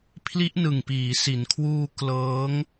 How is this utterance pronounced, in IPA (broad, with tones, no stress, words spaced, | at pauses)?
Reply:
pʰli˦˥ʔnɯ˨˩ŋpiː˩˦ si˩˦nkʰwuː˧ klɤː˦˥ŋ